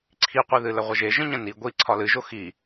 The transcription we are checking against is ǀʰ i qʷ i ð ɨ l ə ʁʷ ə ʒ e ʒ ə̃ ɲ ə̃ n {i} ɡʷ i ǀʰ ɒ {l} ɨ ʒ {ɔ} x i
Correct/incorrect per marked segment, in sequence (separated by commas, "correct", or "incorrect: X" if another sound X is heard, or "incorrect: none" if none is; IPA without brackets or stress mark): correct, correct, incorrect: o